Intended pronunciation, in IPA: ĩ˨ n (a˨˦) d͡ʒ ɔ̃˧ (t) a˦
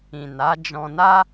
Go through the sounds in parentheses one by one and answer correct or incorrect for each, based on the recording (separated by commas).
correct, incorrect